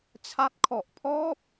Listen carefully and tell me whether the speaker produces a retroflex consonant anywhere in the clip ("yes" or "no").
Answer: no